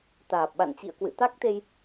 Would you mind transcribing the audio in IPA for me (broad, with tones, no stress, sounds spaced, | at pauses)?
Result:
t̪ aː˨˩ p̚ ɓ a̰˧˨ n t͡ɕ ḭ˧˨ ə̯ k w ɨ̰˧˨ t̪ a˦˥ k̚ t̪ e˧ j